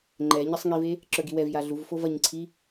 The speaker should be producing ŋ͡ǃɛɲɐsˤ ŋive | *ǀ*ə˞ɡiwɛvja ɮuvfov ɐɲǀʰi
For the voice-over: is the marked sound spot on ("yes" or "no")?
no